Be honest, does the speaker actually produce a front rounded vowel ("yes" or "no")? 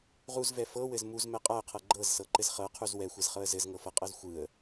no